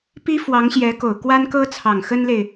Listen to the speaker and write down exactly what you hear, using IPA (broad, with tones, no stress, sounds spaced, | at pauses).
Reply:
p i˥ f w ɑ˧˥ ŋ ɕ j ɛ˧˥ k o˨˩ ʊ̯ k w a˥ n k ɤ˥ t͡sʰ ɑ˨˩ ŋ x ə˥ n l e˨ ɪ̯